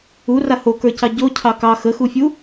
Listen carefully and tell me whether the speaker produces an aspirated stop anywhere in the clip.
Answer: yes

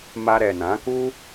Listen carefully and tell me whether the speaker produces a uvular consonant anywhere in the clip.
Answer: no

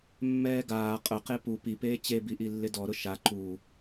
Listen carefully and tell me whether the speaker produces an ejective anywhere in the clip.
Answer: yes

